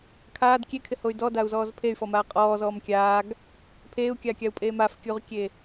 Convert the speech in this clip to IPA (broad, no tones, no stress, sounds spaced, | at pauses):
kʰ aː d kʲ e kʰ ɪ h o y̯ d ɔ d a u̯ z ɔː z pʰ e y̯ f ɔ m aː qʼ ɔː z ɔː m kʲ aː ɡ | pʰ eː u̯ kʲ aː kʲ a u̯ pʼ eː m a f kʲ u ʁ kʲ e